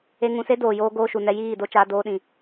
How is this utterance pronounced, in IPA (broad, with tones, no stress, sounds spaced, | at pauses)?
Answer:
e˧ ŋ ũ˧ s e˦ d oː˨ j oː˧ ɡ oː˦ ʃ u˨ n ɛ˧ j iː˦˨ d o˧ t͡ʃ aː˧ d oː˧ ɗ ĩ˨